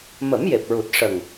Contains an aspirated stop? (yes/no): no